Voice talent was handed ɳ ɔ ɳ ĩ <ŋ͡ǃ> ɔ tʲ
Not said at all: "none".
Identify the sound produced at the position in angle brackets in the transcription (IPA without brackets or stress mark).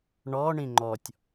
ŋ͡ǃ